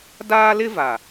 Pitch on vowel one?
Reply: high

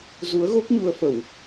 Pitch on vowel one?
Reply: rising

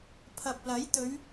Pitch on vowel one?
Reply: low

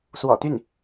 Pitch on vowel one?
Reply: low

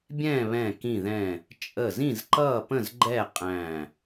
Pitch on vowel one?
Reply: falling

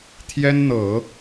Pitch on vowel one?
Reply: high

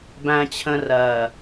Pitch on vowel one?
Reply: low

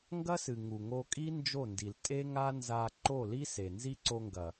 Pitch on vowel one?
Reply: high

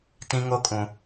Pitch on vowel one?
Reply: high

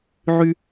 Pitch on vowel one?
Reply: high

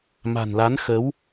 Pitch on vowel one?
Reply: low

